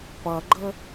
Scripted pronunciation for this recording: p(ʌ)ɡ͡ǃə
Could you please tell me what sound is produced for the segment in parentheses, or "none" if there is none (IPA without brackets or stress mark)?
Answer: ʌ